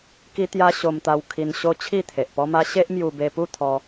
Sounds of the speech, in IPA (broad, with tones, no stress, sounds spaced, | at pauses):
k i˦ t̪ j a˦ ɕ o˧ m t̪ a˧ w kʰ i˧ n ɕ o˦ t͡ɕʰ i˥˧ t̪ʰ e˨ ʔ p ɔ˦ m a˦ ɕ e˦ ʔ m j u˧ b e˧ p u˥˧ t̪ʰ ɔ˧